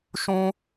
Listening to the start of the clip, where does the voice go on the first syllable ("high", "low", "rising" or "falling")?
high